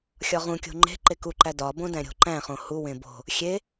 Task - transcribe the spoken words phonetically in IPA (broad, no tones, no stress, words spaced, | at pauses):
xʲɒʁũkʲo̤ ŋ͡ǃe̤ ǃekuǃæ dɒbõ dæ̃ɾʲo̤ǃæ̃χõ huwẽ bo̤ | xʲe